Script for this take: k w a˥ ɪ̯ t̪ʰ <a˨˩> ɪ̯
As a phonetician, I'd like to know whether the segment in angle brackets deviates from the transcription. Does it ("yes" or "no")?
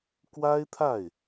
yes